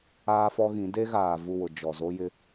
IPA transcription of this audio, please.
aː˦fɔ˦ɣĩ˨˦ de˦ɣaː˨ vu˦˨wʊ˨ d͡ʒɔ˨zo˦jɪ˦

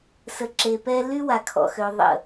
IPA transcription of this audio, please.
sə˨ǁe˨pɛ˦ ly˦ wa˨kʰɔ̰˨xø˨ ðˤə̰˨

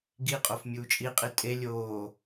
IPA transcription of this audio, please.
ɡiqʼof mʲuːt͡ʃʼiqʼi tʼe lʲoː

